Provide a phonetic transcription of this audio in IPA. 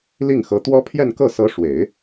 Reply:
l i˥˩ ŋ x ɤ˧˥ t̪ w ɔ˥ pʰ j ɛ˥˧ n k ɤ˥˩ s ɤ˧˥ ʂ w e˨˩˦ ɪ̯

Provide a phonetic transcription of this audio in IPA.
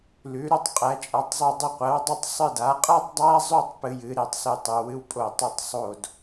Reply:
l ʉ˧˥ ɾ ʉ˥ tˤ qʼ æ˧˥ t͡ʃʼ a˧˥ tˤ zˤ o˥˧ dˤ ɨ˥˧ qʷ æ˧˥ w dˤ ɨ˥˧ tˤ sˤ ɨ˥˧ d a˧˥ qʼ a˥ tˤ dˤ æ˥ zˤ ʉ˥˧ tˤ p ɨ˥ j ɨ˧˥ ɾ e˥˧ tˤ s ɨ˥˧ tˤ ʉ˧˥ w ɨ˥ w pʼ o˥˧ tˤ ʉ˥˧ tˤ sˤ o˥˧ d

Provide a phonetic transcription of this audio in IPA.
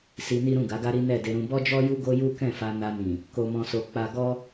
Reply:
s i˧ n i˦ ɾ ũ˦˨ ɡ a˨˦ ɡ a˦ ɾ i˦ n ɛ˦˨ d e˧ ɾ ũ˧ b ɔ˦ d͡ʒ ɔ˦ j u˦ ɡ o˦ j u˦ k ɛ̃˦˨ f a˧ n a˧ n ĩ˨ | k o˧ m ɔ̃˧ s o˧ k͡p a˧ ɡ ɔ˦

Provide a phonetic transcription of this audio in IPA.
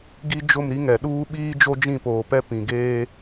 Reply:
ɡ i˦ d͡ʒ ʊ˦˨ m ɾ i˦ ŋ ɛ˨ ɗ uː˦ ɓ iː˦ d͡ʒ o˦ d͡ʒ ĩ˦˨ p oː˨ p ɛ˦ p ĩ˨ ɡ eː˦

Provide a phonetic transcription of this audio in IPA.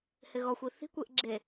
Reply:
h ɪ ɣ ɔ xʷ i θ i̤ kʷ e ʔ ɡ͡ǁ e

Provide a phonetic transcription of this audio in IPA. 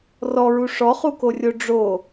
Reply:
r ɔ ɹ u ʂ ɔ χ u k o rʲ o ɖ͡ʐ o

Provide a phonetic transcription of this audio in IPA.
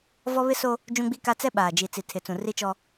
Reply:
v ɔ˦ β ɪ˦ s o˦ | d͡ʒ ũ˦ ɡ͡b i˦ k a˦ t͡s ɛ˦ ɓ aː˨ d͡ʒ i˨ t͡s i˨ tʰ ɪ˨ t͡s ũ˨ r i˦ t͡ʃ ɔ˦

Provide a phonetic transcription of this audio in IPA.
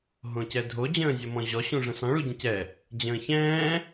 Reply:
ɦ õ c ɛ dʱ o d͡ʑ ə̃ː zʲ ɔ m ɔ̃ ʑ ɔ ɕ ũ ʐ ə̃ s ɔ̃ ɭ u ɟ ə̃ c ɛ | d͡ʑ ə̃ː ç ɛ̃ː

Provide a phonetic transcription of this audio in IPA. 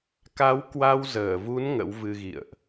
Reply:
k a˨˦ w k w a˧ w z əː˧˩ v u˨˦ n ŋ ə̰˧˥ w v ɨ˧ ɣ ḭ˧˨ ə̯ ʔ

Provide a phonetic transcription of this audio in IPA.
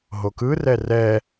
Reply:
ɦ o k ɯ r ɛ r ɛ

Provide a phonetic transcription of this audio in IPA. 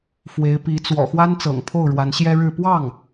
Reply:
f w e˧˥ ɪ̯ p i˧˥ t͡s w ɔ̰˨˩ x w a˥ n t͡s ɤ̰˨˩ ŋ pʰ o˥˩ ʊ̯ ɻ w a˧˥ n ɕ j ɛ˥ ɻ ɻ̩˥˧ p w ɑ˥˩ ŋ

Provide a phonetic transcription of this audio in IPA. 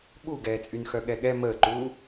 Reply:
ɓ u ɡ ɛː t͡sʼ y n x œ ɠ ɛ ɠ ɛ m əː ǃ uː

